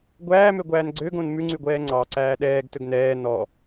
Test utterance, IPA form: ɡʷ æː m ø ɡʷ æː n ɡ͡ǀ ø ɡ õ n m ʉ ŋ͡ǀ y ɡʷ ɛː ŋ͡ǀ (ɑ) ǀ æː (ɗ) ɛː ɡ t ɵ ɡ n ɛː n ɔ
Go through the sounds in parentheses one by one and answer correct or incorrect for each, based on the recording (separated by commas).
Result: correct, correct